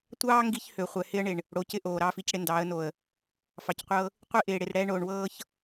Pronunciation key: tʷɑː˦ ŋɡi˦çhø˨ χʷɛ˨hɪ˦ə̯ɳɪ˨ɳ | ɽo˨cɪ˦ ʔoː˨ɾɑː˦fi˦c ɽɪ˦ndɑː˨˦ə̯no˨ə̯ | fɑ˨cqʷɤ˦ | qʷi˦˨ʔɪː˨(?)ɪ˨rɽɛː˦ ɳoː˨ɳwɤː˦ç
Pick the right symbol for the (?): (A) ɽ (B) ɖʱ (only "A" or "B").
A